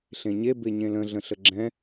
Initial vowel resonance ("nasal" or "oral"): nasal